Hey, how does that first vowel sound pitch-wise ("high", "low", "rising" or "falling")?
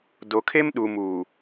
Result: low